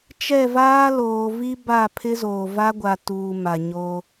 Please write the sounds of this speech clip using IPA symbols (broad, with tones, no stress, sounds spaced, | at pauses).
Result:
t͡ʃ ɛ˦˨ v aː˦ l oː˨ v i˦ b a˦˨ pʰ ɪ˦ z oː˨ v a˦ ɡʷ a˨ t uː˨ m a˨ ɲ o˦